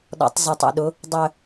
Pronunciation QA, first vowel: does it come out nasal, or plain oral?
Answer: oral